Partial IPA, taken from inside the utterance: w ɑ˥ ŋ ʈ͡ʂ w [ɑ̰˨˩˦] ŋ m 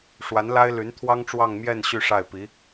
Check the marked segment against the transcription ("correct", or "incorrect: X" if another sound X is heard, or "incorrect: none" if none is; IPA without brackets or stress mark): incorrect: ɑ˥˧